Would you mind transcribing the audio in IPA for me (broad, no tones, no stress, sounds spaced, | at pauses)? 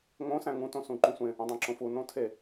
ŋ õ s æ̃ ŋ ũ t õ s ũ ǃ ũ sʷ ẽ | õ dˤ æ̃ ǁ õ f u n õ tʰ e